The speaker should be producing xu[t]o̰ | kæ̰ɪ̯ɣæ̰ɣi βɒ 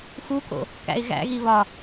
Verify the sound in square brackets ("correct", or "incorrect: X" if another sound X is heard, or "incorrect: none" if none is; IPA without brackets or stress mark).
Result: incorrect: k